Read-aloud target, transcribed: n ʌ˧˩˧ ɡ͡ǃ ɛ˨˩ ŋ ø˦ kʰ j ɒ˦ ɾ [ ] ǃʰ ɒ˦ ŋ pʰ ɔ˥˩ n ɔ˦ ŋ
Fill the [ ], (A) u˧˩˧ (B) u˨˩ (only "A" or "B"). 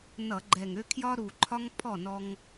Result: B